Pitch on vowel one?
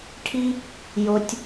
high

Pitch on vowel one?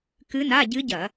rising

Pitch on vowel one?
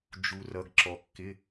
low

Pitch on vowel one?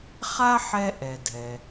high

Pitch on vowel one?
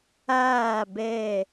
falling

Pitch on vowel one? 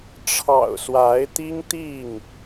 low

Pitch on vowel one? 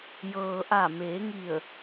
low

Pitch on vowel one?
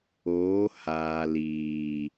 rising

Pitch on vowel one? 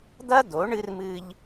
high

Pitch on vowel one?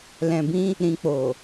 low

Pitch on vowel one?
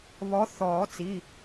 rising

